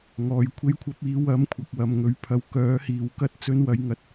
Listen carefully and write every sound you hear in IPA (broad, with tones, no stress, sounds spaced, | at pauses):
ŋ ɔː˨˧ j kʷʰ e˧ j kʷʰ ɐ˧ p̚ iː˨˧ w ɐ˧ m kʷʰ ɐ˨ k̚ w ɐ˨ m ŋ ɵ˨˥ ɥ pʰ ɐ˨˥ w k œː˨˥ h iː˨ w k ɐ˥ t̚ t͡s ɵ˧ n w ɐ˨˧ j ŋ ɐ˨˥ t̚